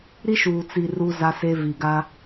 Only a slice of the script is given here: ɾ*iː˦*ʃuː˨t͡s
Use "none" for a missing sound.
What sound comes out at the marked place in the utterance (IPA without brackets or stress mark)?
i˦